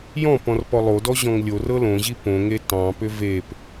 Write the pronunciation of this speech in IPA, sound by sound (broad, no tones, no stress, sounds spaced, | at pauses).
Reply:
j ɔ̃ p ɔ̃ r p ɔ lˠ o d ɔ ʑ ɔ̃ ŋ lʲ o r ɤ l õ ʑ i p õ ŋ e t ɑ̃ p ʏ v e p